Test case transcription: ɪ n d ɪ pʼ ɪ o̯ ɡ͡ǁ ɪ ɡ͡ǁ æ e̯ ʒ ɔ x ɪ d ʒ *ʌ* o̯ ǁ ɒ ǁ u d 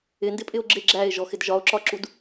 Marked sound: incorrect: ɒ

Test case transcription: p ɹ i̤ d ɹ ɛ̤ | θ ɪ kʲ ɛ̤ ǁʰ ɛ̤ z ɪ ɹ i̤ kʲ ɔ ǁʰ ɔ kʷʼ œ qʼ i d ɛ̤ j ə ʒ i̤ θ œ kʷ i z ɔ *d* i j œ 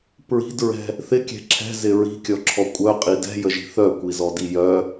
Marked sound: correct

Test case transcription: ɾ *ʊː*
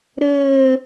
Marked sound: incorrect: əː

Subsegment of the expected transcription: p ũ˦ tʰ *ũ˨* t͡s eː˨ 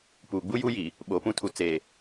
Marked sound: incorrect: u˨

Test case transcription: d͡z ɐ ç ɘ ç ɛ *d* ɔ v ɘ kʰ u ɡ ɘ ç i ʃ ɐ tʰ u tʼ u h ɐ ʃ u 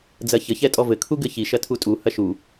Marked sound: incorrect: tʼ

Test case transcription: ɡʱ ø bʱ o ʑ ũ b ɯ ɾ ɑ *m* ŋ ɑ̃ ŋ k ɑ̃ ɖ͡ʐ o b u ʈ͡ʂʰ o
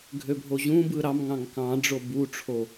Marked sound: correct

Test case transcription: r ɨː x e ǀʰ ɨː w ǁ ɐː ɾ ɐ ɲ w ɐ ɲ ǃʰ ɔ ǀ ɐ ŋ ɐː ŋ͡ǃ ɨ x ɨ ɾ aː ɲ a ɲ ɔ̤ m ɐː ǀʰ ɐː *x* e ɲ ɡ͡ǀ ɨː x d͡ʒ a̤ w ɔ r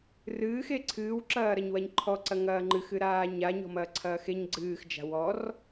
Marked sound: correct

